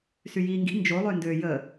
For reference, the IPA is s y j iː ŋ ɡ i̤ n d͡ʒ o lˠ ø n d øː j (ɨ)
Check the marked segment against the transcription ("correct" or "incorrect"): incorrect